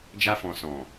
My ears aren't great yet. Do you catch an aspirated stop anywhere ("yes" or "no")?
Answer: no